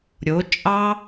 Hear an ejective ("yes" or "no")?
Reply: yes